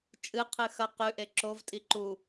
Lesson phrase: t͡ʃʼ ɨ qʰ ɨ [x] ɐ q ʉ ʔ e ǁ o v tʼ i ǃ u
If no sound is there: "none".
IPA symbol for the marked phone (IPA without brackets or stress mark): x